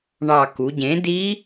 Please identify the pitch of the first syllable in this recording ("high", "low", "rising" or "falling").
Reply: low